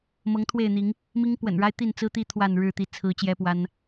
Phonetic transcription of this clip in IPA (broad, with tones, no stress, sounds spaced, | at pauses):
m ɤ˨˦ ŋ t̪ʰ w e˥˨ ɪ̯ n̪ i˨˦ ŋ | m i˦ ŋ p w ə̰˨˩ n ɻ a˦ ɪ̯ t̪ i˥˨ n t͡s ɹ̩˦ t̪ i˦ t̪ʰ w a˥˨ n ɻ ɻ̩˥˨ t̪ i˥˨ t͡sʰ ɹ̩˨˦ t͡ɕ j ɛ˦ p w a˦ n